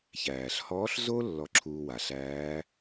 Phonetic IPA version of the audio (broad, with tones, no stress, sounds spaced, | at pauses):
ç æː˩ ɬ h ɔː˧˥ ɬ z o˥ lː ɔ˧ ǁʰ uː˧ w a˩ ɬ æː˧˥